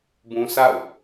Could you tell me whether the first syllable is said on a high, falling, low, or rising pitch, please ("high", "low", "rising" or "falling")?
high